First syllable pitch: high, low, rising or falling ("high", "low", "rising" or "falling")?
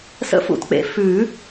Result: rising